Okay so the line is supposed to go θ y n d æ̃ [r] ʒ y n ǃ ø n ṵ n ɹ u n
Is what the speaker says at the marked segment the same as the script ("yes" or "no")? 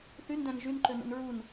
no